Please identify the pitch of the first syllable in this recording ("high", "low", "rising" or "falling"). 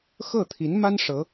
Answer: falling